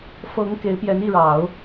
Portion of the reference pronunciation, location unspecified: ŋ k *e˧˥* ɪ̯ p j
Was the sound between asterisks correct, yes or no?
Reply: yes